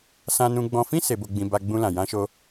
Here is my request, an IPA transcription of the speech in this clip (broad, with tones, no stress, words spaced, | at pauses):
sã˦nũ˦ɡ͡bɔ̃˦ fĩ˦˨se˨bo˨ɡ͡bĩ˨ ba˧ɡ͡bũ˧lã˨ jã˧ʃo˧